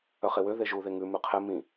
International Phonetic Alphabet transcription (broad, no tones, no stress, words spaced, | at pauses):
œχewø ðeʒuðe ŋʉ mʉqʰɛ mĩ